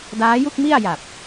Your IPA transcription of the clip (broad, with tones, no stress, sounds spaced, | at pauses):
d aː˦˥ j u˥˩ k̚ m i˥˩ a̯ j a˨˩ p̚